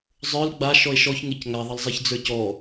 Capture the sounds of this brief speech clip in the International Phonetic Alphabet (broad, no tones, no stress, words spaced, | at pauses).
zˤə˞l ɡ͡ba ʃɔe̯ʃɔç ŋecŋa ðˤʌlzˤɛçd͡zə˞cɔ